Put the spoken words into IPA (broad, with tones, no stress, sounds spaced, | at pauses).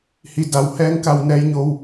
h i˩˧ d a˩ w h ɛː˧ ŋ k a˧˩ w n ɛː˧ j ɲ o˧ w